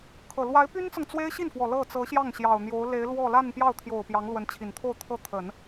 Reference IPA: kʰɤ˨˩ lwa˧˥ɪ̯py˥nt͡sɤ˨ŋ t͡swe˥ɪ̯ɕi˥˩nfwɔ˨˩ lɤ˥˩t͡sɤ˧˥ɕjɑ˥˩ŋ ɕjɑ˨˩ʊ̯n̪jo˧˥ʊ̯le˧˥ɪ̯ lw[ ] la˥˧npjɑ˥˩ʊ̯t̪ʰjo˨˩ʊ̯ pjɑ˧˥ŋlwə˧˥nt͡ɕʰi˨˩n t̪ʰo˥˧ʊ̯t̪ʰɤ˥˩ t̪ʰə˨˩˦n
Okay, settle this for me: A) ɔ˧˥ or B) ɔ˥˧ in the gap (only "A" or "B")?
B